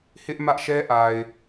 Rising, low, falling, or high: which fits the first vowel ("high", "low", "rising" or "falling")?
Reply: high